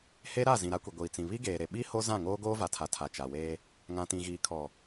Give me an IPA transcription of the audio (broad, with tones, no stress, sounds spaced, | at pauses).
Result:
h e˦ ɾ a˦˨ z ĩ˨ ɾ a˦ kʷ i˨ ɡʷ iː˨ t͡s ĩ˨ β i˦ ɡ eː˨ ɾ e˨ ɓ i˦ h o˦ z ã˦˨ ŋ oː˦ ɡ oː˦ v a˨ tʰ a˨ tʰ a˨ t͡ʃ a˨ w eː˦ | ŋ ã˨ t ĩ˨ ɣ iː˨ kʰ ɔ˨